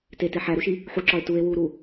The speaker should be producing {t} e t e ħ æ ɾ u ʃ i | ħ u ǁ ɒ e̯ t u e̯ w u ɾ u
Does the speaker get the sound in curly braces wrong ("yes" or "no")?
no